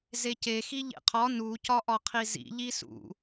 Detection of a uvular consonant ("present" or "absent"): present